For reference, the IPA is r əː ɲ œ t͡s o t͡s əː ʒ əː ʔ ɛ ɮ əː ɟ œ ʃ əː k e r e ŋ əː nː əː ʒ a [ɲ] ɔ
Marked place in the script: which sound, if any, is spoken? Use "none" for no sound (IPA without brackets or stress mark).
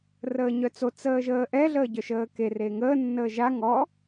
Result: ŋ